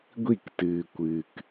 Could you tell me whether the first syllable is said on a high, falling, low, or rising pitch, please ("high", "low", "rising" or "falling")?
falling